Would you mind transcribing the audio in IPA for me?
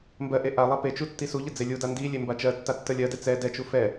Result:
mbɜʔe ʔalˠa pet͡ʃu tːisuʎə d͡zelʲuda ndi lʲembat͡ʃɜtːa tːəlʲɜdɛ t͡sɛ dɛt͡ʃu fɛ

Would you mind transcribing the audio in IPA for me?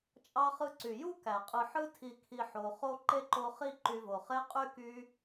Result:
t͡ʃʼɑ˦χɯ˦ ǀy˩ju˥kæ˩qʼɯ˨ ħɯ˦tʰi˨kʰi˨ ħo˨χo˥ ǃe˥ǃo˦χi˥ ǃy˨vo˩χe˦ qʼy˥ky˦

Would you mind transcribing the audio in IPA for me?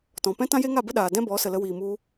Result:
tɔ̃˨pɛ̃˦ tã˦je˦ŋa˦˨bə˦ ɗaː˨dɛ̃˦bɔ˨˦ sə˨lə˧wiː˨mu˧

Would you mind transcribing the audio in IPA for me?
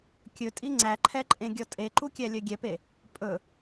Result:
kʲɵtʼi ŋ͡ǀæǃʰɛǃʼẽ ɡʲɔtʼeǃu kʲælʲœɡʲɛpe | pʼɵ

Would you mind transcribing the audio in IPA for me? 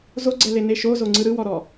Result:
zoɡ͡ǀɛlene ʃozoŋ͡ǀɯ ɾɯwɔɾɔ

